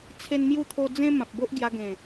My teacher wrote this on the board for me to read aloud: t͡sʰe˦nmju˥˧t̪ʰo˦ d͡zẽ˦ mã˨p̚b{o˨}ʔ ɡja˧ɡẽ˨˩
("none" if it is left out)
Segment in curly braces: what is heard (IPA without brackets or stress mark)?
o˦